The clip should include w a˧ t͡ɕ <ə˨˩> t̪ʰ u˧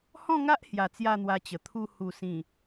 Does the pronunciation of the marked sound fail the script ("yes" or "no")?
no